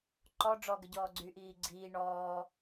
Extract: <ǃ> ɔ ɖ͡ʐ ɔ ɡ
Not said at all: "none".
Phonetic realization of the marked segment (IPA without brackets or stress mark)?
ǃ